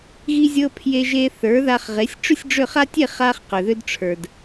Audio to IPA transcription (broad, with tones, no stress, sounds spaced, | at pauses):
ɣ i˧ zʲ ɤ˧ pʰ j e˧ ʒ e˧ θ ə˞˩˥ ð a˧ χ ʁ e˩˥ sʲ ʈ͡ʂ ʏ˥ sʲ ɖ͡ʐ ʏ˥˩ χ a˥ tʲ e˥˩ χ a˧ χ q ʏ˩ ð ʏ˧ d ʈ͡ʂʰ ə˞˩ d